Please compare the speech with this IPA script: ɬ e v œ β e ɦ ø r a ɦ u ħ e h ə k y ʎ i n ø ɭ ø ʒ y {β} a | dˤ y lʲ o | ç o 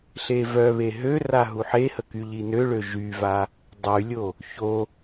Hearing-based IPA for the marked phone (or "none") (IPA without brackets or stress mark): v